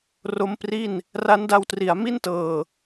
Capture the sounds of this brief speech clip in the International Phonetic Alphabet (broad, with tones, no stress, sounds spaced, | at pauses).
r o˦˥ m p r i˥˩ n | r a˦˥ n d a˧ w t r i˩˦ a̯ m i˥˩ n t ɤː˨˩